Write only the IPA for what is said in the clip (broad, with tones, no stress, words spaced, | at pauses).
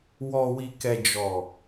wɔ˨wi˨kɛ˨ d͡ʒɔ˨